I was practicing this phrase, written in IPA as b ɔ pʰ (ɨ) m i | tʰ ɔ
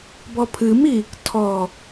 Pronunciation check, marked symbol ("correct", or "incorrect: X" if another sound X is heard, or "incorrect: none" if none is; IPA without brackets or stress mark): correct